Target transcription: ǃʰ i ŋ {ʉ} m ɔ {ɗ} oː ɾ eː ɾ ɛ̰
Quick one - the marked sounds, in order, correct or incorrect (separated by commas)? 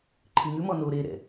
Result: correct, incorrect